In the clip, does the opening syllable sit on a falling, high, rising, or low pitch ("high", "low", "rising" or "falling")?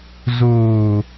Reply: low